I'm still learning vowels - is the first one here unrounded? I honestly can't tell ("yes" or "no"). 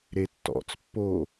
yes